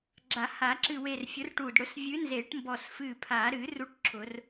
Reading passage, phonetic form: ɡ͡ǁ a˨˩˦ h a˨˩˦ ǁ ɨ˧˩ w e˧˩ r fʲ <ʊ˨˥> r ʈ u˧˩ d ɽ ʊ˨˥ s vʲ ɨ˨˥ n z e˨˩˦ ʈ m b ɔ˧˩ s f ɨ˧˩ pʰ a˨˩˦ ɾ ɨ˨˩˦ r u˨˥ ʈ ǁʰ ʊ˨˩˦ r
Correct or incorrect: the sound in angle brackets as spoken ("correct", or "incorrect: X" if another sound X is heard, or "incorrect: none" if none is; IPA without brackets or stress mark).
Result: correct